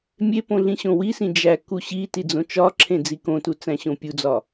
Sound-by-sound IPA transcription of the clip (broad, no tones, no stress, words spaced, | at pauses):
mʲepõ ɮĩɕõwisĩ d͡ʒæku ɕiti d͡zõt͡ʃɒǁʰẽ d͡zikõtu t͡sæ̃ɕõpʲud͡zɒ